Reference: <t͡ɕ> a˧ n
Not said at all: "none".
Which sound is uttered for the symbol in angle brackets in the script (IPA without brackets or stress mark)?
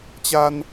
t͡ɕ